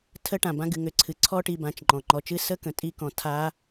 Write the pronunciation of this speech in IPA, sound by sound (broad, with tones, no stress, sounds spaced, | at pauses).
tʰ ə˦˥ ʈ ã˩ b ã˦˥ ɡ ɨ˩˧ ŋ ʏ˩˧ ǀʰ ɨ˩ ǀʰ ɔ˦˥ ʈ i˩˧ b ã˩˧ t͡ʃ ŋ͡ǃ ɔ̃˩ ŋ͡ǃ ɔ˩˧ t͡ʃ ɨ˦˥ s ə˦˥ k ə̃˩˧ tʼ i˦˥ k ɔ̃˩˧ tʰ a˦˥